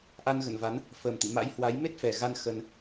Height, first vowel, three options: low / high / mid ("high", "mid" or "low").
low